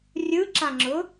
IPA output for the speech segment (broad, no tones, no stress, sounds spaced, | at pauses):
rʲ ɯ ǁ ã ŋ͡ǁ ʊ